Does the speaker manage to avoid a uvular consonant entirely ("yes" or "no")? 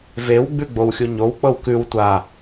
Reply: yes